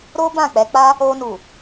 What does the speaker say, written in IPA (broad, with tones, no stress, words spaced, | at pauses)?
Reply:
ɾo˦ bã˦˨k͡pɛ˨˦k͡pa˦ | o˧nu˨